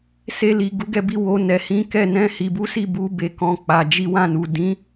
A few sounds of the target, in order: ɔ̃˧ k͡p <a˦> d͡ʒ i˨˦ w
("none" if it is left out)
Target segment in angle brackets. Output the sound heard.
a˨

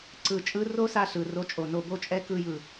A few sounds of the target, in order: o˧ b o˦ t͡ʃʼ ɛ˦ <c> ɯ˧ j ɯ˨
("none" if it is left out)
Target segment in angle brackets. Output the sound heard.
k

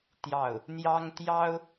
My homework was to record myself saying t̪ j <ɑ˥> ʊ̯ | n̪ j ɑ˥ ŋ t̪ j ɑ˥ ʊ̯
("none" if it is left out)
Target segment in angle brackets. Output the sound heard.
ɑ˥˩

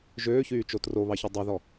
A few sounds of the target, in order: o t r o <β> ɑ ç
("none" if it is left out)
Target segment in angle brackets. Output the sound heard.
β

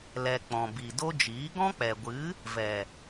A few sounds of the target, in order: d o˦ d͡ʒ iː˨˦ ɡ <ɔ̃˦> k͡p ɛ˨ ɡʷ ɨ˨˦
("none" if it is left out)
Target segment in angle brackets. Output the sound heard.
ɔ̃˦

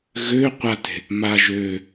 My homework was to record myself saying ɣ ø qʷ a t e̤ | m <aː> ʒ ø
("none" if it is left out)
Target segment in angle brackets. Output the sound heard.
a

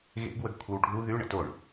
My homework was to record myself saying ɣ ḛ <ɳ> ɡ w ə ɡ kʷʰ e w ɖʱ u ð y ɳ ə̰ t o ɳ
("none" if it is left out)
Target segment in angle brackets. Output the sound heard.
none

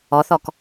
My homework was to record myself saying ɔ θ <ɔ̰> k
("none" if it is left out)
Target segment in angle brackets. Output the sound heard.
ɔ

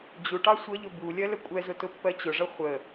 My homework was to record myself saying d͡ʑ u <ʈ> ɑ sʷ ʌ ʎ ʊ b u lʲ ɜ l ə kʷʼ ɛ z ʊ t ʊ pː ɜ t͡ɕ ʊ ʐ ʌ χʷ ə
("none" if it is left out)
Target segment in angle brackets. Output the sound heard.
ʈ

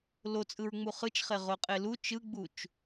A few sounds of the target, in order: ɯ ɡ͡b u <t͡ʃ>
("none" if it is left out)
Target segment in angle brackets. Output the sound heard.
t͡ʃ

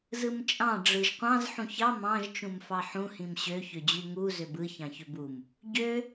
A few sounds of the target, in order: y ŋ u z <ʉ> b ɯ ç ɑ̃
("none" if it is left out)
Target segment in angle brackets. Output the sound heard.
ø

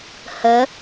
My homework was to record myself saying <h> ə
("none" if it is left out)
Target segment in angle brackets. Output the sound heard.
h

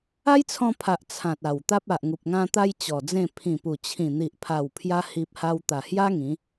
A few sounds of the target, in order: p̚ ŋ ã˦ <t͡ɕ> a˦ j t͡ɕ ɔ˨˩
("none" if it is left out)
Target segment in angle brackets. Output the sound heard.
t̪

